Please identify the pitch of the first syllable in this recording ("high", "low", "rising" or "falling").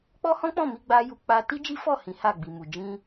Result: high